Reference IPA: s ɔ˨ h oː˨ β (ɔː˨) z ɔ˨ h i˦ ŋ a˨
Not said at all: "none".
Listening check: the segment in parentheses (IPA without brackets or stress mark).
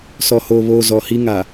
oː˨